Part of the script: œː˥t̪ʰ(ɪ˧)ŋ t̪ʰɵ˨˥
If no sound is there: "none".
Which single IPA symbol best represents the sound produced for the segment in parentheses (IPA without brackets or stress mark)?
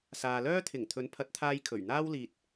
ɪ˨˩